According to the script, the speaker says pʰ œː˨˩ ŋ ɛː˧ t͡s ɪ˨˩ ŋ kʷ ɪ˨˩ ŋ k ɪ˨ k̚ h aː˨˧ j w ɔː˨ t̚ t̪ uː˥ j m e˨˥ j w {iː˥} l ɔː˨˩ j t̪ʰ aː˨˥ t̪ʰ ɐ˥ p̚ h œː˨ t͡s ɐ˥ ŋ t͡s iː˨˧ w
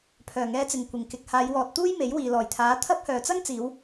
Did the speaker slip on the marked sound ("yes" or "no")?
yes